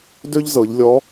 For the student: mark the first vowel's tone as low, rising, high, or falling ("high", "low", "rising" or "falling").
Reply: high